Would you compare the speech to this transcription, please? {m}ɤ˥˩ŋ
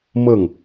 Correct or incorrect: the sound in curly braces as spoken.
correct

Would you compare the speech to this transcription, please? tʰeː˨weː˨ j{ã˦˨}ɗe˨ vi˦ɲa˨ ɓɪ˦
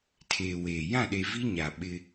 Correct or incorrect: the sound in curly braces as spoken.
correct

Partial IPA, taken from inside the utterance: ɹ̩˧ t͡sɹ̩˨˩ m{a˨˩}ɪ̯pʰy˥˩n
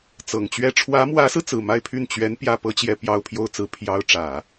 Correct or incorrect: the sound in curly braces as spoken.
incorrect: a˥˧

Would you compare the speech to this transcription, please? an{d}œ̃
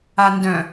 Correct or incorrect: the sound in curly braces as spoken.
correct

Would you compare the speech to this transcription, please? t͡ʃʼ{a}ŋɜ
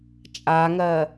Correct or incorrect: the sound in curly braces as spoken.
correct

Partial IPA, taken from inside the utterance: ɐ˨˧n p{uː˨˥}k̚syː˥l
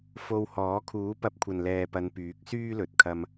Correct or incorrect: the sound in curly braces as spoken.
incorrect: yː˨˥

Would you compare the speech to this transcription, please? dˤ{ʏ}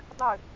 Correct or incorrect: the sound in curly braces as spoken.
correct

